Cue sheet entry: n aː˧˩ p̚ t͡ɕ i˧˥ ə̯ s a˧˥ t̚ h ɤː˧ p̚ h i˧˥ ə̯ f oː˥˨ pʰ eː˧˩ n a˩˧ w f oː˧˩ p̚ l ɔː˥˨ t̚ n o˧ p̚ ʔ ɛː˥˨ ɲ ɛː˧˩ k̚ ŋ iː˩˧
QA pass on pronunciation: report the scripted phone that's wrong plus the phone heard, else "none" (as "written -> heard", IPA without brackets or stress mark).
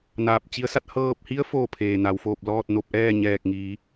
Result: none